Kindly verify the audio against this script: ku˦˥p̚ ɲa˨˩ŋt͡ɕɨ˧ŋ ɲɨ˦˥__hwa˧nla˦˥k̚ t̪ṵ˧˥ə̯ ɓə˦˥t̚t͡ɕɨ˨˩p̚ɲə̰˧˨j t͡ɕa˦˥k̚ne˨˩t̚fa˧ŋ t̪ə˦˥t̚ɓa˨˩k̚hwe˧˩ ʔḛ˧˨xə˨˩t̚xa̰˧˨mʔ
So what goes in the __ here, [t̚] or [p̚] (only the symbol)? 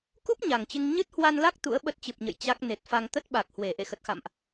t̚